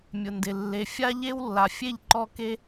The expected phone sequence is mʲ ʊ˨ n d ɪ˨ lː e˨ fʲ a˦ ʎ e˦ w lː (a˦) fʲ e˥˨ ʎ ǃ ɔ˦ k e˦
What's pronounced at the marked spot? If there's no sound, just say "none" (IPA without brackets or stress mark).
a˨